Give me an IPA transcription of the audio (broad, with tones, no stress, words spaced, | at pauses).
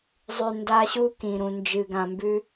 zˤʉ˨nda˦ɕu˦ kĩ˨ɾũ˨nd͡ʒɨ˨ ɡã˨mbʉ˦